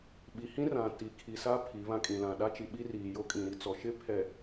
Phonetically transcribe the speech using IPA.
ɓ i˨ h ĩ˦ r ã˨ t i˨ kʰ i˨ s a˦ pʰ i˨˦ β ã˦ kʼ ĩ˨ l ã˨ ɗ a˦ t͡ʃ i˨ ɓ i˦ r iː˨ j o˦ kʼ ĩ˨ ɾ i˦ t͡s ɔ˨ ʃ ɪ˦ pʰ ɛ˨

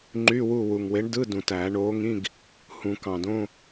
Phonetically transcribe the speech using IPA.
ŋ͡ǃ y˧˥˧ w u˦˨ w u˨˩ ŋ w e˨˥ ɳ d ɯ˧˥˧ d ũ˨˩ t æː˨˩˦ ɳ oː˨˥ ŋ ĩ˧˥˧ ɡ | h ũ˨˩˦ k ɑ̃˨˩ d õ˧˥˧

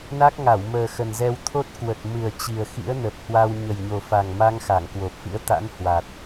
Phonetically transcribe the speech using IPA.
n a˦˥ k̚ ŋ a˧˩ w m əː˨˩ x ə˨˩ n z ɛ˧ w t̪ʰ o˦˥ t̚ k w ə˨˩ t̚ m ɨ˨˩ ə̯ t͡ɕ i˨˩ ə̯ x ḭ˧˥ ə̯ n ə˨˩ p̚ h w a˧ w ɲ ə˨˩ j ɲ o˨˩ f a˨˩ ŋ m a˧ ŋ x a˧˩ ŋ k w o˨˩ p̚ f ḭ˧˥ ə̯ t̪ a̰˧˥ n h w a˨˩ t̚

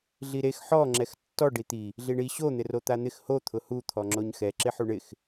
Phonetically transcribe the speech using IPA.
ɮ i ɾ e x ħ ɔ ŋ͡ǁ ɛ x tː ɔ ɖ i t̪ i | ɮ i ɳ i ɕ o n̪ ɪ r o t̪ a n̪ ɪ x h o t̪ʰ ʊ h u t̪ʰ ɔ ŋ͡ǁ o ɲ x ɛ ǁ ɪ ħ u ɳ ɪ x

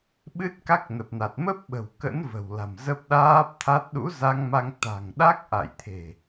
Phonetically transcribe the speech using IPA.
ɓ ɨ˦˥ t̚ k a˦˥ k̚ n ə˨˩ p̚ n a˨˩ t̚ m ə˦˥ p̚ ɓ ə̤˨˩ w k ə̰˧˥ n v ə̤˨˩ w l a̤˨˩ m z ə˦˥ p̚ ɗ aː˦˥ p̚ t̪ʰ a˦˥ t̚ ɗ ṵ˧˥ z a˧ ŋ m a˧ ŋ t̪ a̤˨˩ ŋ ɗ a˦˥ k̚ ʔ a̰˧˨ j t̪ʰ e̤˨˩

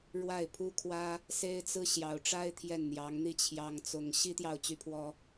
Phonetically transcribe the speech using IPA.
ɻ w a˥˩ ɪ̯ pʰ u˥ kʰ w ä˥ | s e˥ ɪ̯ t͡s ɹ̩˥ ɕ j ɑ˧˥ ʊ̯ ʈ͡ʂ a˥ ɪ̯ t̪ʰ j ɛ˥˩ n n̪ j ɑ˧˥ ŋ n̪ i˥ t͡ɕʰ j ɑ˥ ŋ t͡s ʊ˥ ŋ ɕ i˥ t̪ j ɑ˥˩ ʊ̯ t͡ɕ y˥ pʰ w ɔ˥

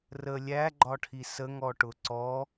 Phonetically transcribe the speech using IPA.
r ə lʲ æ ɡ͡ǃ ɒ ʈʰ i s ə ŋ ɔ ʈ ʊ ǀ ɔ

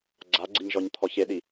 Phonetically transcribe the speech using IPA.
ɡ͡ǀ a ɡ͡ǀ i ɲ ʒ ɔ ɲ t̪ʰ ɔ ç e ɗ i

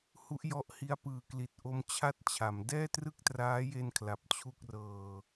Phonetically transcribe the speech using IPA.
h u˦˥ ʔ j ɔ˦˥ ʔ h i˦˥ a̯ p ɯː˨˩ k l i˨˩ t̚ ʔ o˧ m t͡ɕʰ a˥˩ t̚ t͡ɕʰ a˩˦ m d ɛː˥˩ t r ɯ˥˩ k̚ t r aː˦˥ j e˧ n kʰ l a˨˩ p̚ t͡ɕʰ u˥˩ k̚ r ɤː˧

